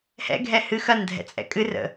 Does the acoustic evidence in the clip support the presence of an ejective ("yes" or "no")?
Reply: yes